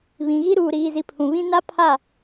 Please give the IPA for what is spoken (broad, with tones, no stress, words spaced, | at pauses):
βĩ˨ɣi˦ ɾuː˨ɾiː˨zi˨ pʰũ˨βĩ˦ na˦pʰa˦˨